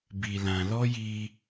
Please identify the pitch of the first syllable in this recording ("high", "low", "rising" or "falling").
low